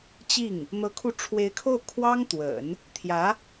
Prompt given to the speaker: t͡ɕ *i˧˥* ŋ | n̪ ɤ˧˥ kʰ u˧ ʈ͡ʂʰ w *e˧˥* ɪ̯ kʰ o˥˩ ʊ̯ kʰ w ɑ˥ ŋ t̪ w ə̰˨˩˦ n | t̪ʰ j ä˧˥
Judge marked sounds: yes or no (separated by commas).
no, yes